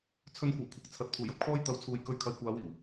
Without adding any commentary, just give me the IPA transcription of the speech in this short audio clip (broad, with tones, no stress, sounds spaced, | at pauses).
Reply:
t͡sʰ ɵ˧ n kʷ ɐ˨˩ w kʷʰ ɐ˨˥ k̚ t͡sʰ ɐ˨ t̚ pʰ uː˨˩ j ɐ˧ p̚ kʰ ɔː˥ j t̪ ɐ˨˧ w t͡sʰ uː˨ j k ɵ˧ ɥ kʰ ɐ˨ j kʷ aː˨˧ w iː˨˩ w